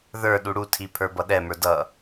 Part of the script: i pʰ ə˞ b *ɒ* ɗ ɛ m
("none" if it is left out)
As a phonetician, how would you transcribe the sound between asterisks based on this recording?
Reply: ʌ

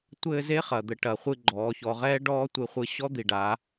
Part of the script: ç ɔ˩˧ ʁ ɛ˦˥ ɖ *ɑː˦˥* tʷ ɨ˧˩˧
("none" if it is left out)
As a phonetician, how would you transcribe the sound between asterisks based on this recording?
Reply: ɔː˦˥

